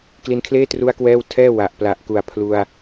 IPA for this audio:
k l i˧ n kʰ l eː˥˩ t r u˦˥ a̯ k w ɛː˥˩ w tʰ ɛː˥˩ w a˨˩ ʔ p l a˨˩ ʔ k u˨˩ a̯ pʰ l u˧ a̯

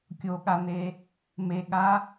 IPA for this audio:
kʲ o ɠ a n e | m e ɠ a

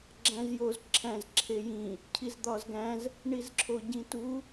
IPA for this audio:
ɡ͡ǁ æ̃ z j o z ǁʰ æ̃ z ǁʰ e j ĩ | cʰ i z d̪ ɒ z ɡ æ̃ z | ɳ i z ǁʰ o ɟ ĩ t u

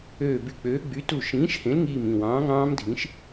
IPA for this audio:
øː˧˩ b y˧˩ k͡p øː˨˥ ɡ͡b y˨˥ t u˧˩ ʃ ĩː˨˥ ʃ h ẽ˨˥ l ŋ iː˧˩ m ĩ˧˩ w ɑ̃ː˨˥ ŋ ɑ̃ː˦˥ m dʱ ĩ˨˥ ʃ

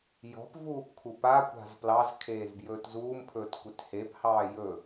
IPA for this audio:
j ɔ̤ p v uː p kʰ u p a kʷ a̤ z p l ɑ z kʰ eː z b j ɵː t z uː m pʰ ɵː t kʷ e t h e p h ɑː j ɵ

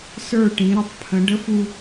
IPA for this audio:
s ə˞˦˨ ʈ ĩ˨˦ ɾ ə˨ tˤ pʰ ə̃˨˦ ɖ ə˦ f u˦

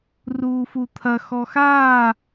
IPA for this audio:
r uː f u t̪ʰ ɐ x ɔ x aː

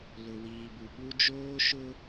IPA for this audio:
l ʊ˨ w iː˨ b u˨ ɓ u˦ d͡ʒ oː˦ ʃ ʊ˦

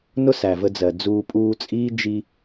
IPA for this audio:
n ʊ˦ s æ˨ v ə˧ d͡z ɜ˨ d͡z uː˧ pʼ uː˧ t͡sʼ iː˦ d͡ʒ i˧

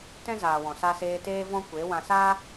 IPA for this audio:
t ɛ̃˦ z aː˨ w ɔ̃˨ s a˧ s eː˧ t eː˦ v ɔ̃˦ kʷ e˨˦ w ã˨ s aː˦

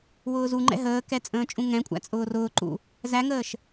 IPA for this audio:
w ʊː z u ŋ͡ǃ ɛ̰ ɦ əː k ɛ t͡sʼ ə̃ː t͡ʃʼ ũ ŋ ɛ̃ kʷʼ æ̰ t͡sʼ ʊː r ʊː ǃ ṵ | z æ ŋ əː ʃ

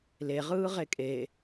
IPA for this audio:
l e ʁ ɯː ʁ e kʼ e

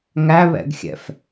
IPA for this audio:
ŋ æ β ɛ̰ ɡ xʲ ɛ̰ f

